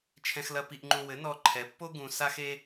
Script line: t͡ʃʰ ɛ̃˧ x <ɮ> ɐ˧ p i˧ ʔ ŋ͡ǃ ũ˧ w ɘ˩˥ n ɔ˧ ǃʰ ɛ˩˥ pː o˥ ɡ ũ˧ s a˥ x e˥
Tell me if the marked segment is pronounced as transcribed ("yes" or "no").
no